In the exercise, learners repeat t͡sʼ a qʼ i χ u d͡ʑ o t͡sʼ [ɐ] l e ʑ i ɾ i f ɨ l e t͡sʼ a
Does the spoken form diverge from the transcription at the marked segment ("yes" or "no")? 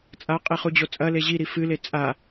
no